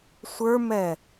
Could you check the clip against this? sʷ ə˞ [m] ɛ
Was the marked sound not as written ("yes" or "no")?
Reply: no